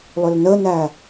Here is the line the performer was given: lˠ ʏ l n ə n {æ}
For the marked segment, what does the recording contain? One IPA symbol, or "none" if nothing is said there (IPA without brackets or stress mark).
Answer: æ